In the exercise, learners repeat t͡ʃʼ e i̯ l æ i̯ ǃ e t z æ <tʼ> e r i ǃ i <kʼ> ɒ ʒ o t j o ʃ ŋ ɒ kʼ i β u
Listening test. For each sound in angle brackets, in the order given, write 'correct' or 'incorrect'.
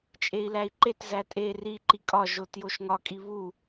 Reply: correct, correct

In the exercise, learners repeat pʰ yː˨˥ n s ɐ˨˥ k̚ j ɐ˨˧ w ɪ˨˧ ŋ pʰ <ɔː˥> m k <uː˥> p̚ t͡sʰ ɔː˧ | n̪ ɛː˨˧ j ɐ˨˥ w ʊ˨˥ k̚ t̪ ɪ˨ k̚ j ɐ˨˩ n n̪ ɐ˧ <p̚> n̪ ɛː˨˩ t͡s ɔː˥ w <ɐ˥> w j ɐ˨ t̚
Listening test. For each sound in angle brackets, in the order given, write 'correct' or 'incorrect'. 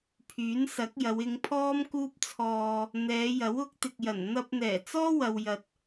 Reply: correct, correct, correct, incorrect: ɐ˨

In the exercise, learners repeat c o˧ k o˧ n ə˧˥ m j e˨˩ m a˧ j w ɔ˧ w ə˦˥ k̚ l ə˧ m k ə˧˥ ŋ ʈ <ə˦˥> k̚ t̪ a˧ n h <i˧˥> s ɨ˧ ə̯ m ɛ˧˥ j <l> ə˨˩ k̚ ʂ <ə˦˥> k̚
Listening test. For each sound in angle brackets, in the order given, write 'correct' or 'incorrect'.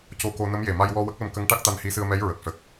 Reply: incorrect: a˦˥, correct, incorrect: ɹ, incorrect: ə˨˩

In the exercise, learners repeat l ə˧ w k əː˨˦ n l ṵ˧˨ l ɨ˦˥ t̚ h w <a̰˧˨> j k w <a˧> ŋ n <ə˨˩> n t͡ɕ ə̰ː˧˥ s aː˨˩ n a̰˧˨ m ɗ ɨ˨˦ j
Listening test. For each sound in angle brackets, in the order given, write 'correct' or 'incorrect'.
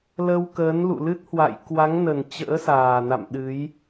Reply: correct, incorrect: a˨˦, correct

